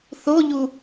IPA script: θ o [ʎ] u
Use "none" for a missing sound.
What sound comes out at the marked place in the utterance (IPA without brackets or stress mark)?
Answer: ʎ